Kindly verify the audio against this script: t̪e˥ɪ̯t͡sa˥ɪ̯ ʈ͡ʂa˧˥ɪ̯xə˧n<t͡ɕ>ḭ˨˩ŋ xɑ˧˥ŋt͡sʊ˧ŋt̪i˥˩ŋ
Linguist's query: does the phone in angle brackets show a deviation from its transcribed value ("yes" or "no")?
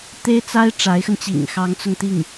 no